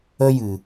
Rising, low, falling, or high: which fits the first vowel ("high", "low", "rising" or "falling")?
high